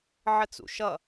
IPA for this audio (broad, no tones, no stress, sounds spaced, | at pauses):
ʕ ə t͡s ṵ ʃ ʌ